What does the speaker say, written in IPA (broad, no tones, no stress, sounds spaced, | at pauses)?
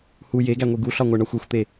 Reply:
h u j e ɡ æ ŋʷ i ɡ u ɬ ɒ ŋʷ æ ɳ ɒ xʷ o xʷ t̪ e